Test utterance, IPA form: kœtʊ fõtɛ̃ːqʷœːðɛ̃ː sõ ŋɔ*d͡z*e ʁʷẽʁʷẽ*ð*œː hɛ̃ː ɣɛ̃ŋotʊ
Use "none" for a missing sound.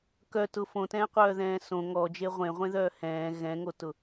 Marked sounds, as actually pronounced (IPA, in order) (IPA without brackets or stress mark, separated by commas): d͡ʒ, ð